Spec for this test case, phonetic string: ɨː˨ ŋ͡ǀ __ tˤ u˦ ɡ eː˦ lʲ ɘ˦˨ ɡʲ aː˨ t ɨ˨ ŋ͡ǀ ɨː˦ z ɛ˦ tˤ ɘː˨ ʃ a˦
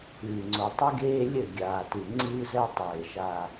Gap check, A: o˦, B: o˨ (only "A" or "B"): B